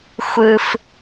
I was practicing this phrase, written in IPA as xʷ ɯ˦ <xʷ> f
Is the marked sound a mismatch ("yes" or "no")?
yes